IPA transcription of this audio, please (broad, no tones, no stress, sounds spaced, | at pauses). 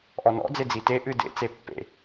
ʔ ɔ n ɔ̰ d͡z e d͡z i t e ʔ ɨ d ḛ t͡s e pː ḛ